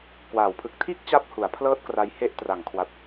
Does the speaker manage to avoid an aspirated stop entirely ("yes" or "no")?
no